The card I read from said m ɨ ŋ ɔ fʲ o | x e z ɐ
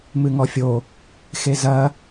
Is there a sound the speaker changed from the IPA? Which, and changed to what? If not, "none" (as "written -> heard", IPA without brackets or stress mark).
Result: none